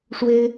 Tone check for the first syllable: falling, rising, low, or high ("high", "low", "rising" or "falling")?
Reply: high